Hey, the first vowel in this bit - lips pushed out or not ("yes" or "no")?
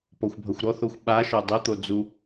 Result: yes